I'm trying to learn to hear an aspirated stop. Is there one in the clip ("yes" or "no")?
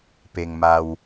no